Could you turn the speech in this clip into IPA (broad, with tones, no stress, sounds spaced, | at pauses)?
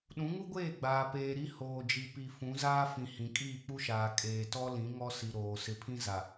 ɗ ũ˨˦ ŋ u˦ ɡʷ eː˦˨ ɡ͡b aː˨ p eː˨ ɾ i˦ h oː˨ d͡ʒ i˨ p i˨ f ũ˨˦ z aː˦ f ĩ˨ h ĩ˨ kʼ iː˦˨ k͡p u˦ ʃ aː˨ kʼ eː˨ t ɔ˦ l ĩ˨˦ ŋ ɔ˦ s i˨ ɾ oː˨ s ɪ˨ pʰ ĩ˦ z a˨